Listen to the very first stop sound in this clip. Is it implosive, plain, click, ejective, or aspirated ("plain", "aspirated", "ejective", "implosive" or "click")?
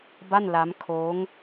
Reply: plain